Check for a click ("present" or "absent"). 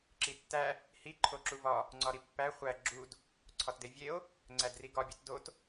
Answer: present